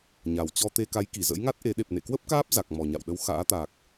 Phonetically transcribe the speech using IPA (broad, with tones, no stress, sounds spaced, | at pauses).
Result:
ɲ a˨˩ w t͡ɕ ɔ˧ t̪ e˧ k a˨˦ j k i˧˩ z ə̰˧˥ j ŋ a˦˥ t̚ ʔ e˨˦ ɗ e˨˩ p̚ n ḛ˧˨ k w ə˦˥ p̚ k aː˦˥ p̚ z a˨˩ k̚ m ɔ˨˩ ɲ a̰˧˨ w ɗ ə˨˦ w x a̰ː˧˥ t̪ a˨˩ k̚